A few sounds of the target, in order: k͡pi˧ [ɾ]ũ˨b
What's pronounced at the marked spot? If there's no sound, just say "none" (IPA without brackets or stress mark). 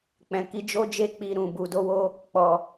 ɾ